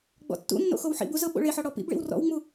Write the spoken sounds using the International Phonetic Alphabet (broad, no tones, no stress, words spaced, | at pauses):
ɡ͡bɔ̰tːṵnːo̰ xowħḭbu zɤɓo̰ɭeħɔ ɽɔpḭbɭḭw rɔ̰wŋ͡mu